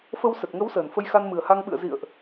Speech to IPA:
fə˧wsə˨˩t̚ŋə˨˦w səː˨˩nfə˧jxa˧nmɨ˨˩ə̯ ha˧ŋɓɨ̰˧˨ə̯zḭ˧˨ə̯ʔ

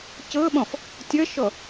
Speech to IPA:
cɤɓɔ̃f | tʲʌʃɔ

